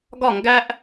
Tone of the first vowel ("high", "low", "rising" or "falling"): falling